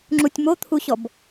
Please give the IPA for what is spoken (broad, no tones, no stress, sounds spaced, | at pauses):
ŋ͡ǁ u tʲ m o t̪ʰ u ɕ ɔ b